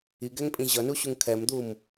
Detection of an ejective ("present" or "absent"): present